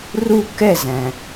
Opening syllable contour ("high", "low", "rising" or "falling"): falling